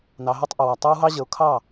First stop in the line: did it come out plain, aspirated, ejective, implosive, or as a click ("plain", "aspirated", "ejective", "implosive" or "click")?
plain